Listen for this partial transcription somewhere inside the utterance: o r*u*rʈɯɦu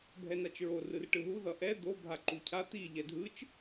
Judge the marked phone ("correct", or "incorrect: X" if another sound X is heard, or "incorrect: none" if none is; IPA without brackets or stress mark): incorrect: ɯ